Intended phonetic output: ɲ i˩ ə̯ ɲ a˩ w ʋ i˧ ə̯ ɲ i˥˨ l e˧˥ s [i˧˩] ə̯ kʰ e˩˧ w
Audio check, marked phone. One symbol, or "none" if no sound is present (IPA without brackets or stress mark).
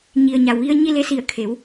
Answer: i˧˩